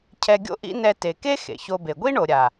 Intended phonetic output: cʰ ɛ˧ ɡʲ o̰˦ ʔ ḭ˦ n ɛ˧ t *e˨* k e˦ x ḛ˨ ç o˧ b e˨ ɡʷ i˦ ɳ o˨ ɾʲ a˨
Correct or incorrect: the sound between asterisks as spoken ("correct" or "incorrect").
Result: correct